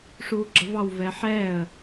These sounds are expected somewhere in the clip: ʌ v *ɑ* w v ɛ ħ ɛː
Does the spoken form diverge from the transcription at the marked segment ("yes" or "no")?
no